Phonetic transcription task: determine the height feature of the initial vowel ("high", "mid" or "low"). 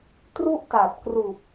high